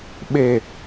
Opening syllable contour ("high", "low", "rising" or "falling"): low